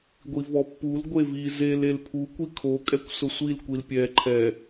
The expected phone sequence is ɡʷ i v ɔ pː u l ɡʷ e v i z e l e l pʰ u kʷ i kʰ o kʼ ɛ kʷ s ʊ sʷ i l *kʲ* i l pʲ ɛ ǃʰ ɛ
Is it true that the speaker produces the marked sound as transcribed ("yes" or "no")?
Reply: no